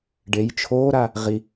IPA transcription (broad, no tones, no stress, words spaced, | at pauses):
ɖej t͡ʃʰoːɾa | ʁi